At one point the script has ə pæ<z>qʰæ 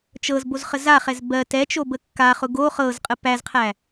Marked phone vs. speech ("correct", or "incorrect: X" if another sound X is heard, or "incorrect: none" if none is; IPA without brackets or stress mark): correct